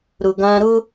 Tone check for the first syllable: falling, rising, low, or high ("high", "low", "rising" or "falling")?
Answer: low